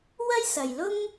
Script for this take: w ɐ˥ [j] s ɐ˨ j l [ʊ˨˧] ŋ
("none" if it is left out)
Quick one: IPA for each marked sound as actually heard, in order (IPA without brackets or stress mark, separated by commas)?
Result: j, ʊ˥